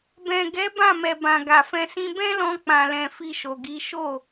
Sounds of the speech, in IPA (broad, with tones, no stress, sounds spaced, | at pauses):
b ɛ̃˨ ɡ ɛ˨˦ b ã˦˨ m ɛ˨ b ã˨ ɡ a˨ f ɛ̃˧ s ĩ˧ b ɛ̃˦ l ɔ̃˧ k͡p ã˨ l ɛ̃˨ f i˧ ʃ o˨ ɡ i˨˦ ʃ o˦˨